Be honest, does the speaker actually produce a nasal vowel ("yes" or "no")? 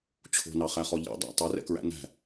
no